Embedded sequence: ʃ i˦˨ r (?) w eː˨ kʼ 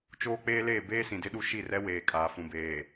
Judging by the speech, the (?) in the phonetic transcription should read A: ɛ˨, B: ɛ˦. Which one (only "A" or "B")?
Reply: B